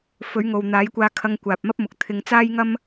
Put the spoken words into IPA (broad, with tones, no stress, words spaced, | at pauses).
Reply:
fɵ˨˥ɥŋo˨w n̪aː˨˥jkʷaː˧kʰɐ˧ŋ kʷaː˨p̚mɐ˥p̚mʊ˨k̚ t̪ʰɪ˧ŋ t͡saː˥jŋɐ˥m